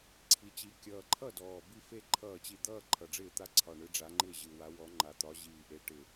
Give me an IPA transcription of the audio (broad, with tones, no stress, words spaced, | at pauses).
ǀʰi˨˩t͡ɕi˨˦ kʲʌː˨˩ǃʰʌ˥˩ dɔː˨˩bi˥˧fe˥˧ ǃʰʌː˥˩t͡ɕi˥˩ d̪ʌː˥˧ ǃʰʌ˨˩ɖ͡ʐɪː˥˩t̪a˥˩ ǀʰɒ˨˩ɳɯ˨˦ɖ͡ʐa˨˦ŋ͡ǃɪː˥˩ ʑɯ˨˩wa˨˦ wɔ˨˦ ŋ͡ǃa˨˩t̪ɒ˨˦ ʑiː˨˩ʔe˨˦ʈɪ˨˩